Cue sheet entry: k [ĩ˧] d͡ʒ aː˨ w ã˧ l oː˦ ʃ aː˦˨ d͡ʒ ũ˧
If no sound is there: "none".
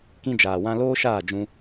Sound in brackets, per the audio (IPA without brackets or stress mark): ĩ˧